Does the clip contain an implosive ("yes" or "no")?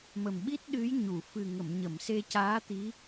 yes